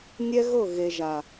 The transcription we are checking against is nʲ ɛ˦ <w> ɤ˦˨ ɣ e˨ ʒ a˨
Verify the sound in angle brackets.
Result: incorrect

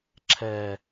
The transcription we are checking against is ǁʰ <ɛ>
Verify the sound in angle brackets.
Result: incorrect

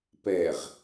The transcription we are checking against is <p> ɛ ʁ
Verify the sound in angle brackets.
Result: correct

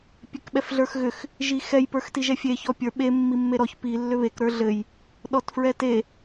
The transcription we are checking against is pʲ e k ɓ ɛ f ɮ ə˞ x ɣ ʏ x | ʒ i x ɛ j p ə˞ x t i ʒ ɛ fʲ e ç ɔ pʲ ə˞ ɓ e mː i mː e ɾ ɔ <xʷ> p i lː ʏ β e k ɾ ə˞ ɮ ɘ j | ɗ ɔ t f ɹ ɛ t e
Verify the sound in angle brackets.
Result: incorrect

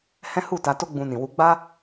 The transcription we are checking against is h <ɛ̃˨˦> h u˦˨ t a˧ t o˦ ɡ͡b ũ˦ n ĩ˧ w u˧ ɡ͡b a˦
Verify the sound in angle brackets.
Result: incorrect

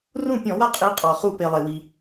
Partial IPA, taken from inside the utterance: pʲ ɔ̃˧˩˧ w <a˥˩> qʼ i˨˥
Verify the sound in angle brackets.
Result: correct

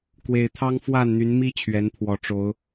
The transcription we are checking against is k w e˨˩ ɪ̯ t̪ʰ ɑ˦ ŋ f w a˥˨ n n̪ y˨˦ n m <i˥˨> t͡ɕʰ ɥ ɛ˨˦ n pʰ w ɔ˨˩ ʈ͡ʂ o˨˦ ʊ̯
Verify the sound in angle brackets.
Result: incorrect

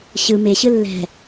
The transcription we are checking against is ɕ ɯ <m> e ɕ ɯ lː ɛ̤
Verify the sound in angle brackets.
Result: correct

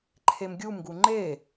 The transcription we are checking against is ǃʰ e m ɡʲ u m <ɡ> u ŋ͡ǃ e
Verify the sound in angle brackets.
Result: correct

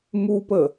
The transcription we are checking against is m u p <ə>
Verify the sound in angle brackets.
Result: correct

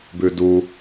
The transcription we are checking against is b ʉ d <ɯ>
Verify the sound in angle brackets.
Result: incorrect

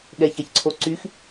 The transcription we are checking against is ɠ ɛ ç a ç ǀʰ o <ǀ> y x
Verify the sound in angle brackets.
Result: correct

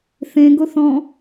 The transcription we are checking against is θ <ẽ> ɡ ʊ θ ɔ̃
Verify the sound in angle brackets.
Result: correct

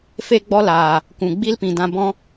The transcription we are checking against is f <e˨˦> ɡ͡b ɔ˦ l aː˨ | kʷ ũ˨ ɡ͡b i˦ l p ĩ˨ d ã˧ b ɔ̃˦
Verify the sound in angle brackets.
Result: incorrect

